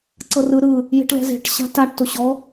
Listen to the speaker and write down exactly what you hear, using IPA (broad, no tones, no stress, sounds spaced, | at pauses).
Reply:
ǀ ɤ r ɯ ɾ ɯ | j e̤ ʈ l ɛ̤ z e̤ ʈ ɕ a̤ t a ʈ t o ɕ ɔ